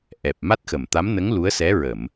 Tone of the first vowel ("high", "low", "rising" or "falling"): low